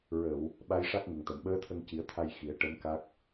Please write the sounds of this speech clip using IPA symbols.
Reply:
ɹ ə˨˩˨ w | ɓ a˧˥ j ʂ a˦˥ k̚ ŋ ə˨˩ ŋ t̪ ə˨˩˨ m ɓ əː˧˥ t̪ʰ ə˧ ŋ c i˨˩˦ ə̯ t̪ʰ a˧ j x i˨˩˦ ə̯ ʈ ə˧˥ m k a˦˥ k̚

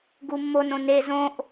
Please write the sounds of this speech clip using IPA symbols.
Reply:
ɡ u mː o n õ n e z õ ʔ

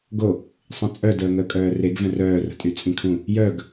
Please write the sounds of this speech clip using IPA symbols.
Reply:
ɡ o | sˤ ĩ t͡sʼ œ d əː ŋ əː kʼ œː r e ɡ v œ̃ r œː r ə̤ tʼ y t͡sʼ ĩ kʰ ũ | j œ ɡ

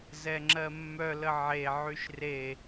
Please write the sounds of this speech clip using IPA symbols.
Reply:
z ɛ ŋ͡ǁ ɜ mː œ l ə ʕ e ʕ y ʃ r e

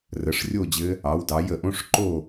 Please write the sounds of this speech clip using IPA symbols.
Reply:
r ə˨˦ ʂ rʲ o˥˧ d͡ʑ ɘ˦˥ | ɑ˨˦ w d ɑ˨˦ j ə˨˩˦ ʔ õ˧˥˧ ʂ ǃ o˥˧

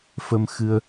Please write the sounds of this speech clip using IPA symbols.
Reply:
f ə˧ m x ɨ˧ ə̯

